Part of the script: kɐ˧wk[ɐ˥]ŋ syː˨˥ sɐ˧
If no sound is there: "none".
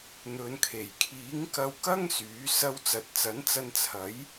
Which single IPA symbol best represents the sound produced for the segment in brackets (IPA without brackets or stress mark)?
ɐ˥